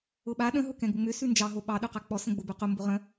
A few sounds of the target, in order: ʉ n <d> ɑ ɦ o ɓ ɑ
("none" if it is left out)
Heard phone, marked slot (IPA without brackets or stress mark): d͡ʒ